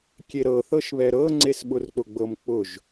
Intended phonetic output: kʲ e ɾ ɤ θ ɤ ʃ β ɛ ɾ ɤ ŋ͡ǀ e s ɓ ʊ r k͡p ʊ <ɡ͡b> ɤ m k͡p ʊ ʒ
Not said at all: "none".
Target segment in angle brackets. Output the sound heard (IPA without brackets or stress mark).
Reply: ɡ͡b